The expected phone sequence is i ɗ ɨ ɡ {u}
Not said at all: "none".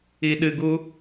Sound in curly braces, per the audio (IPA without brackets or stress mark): u